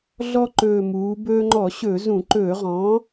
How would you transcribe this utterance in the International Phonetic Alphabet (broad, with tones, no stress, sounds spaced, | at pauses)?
ɮ ɔ˦ ǃ ɵː˨˩ m uː˩˧ b ɵː˦ ŋ͡ǃ ɔ˧˩˧ ɕ ɵ˧˩˧ z ũ˧˩˧ ǃ ɵː˧˩˧ ʁ ɔ̃ː˩˥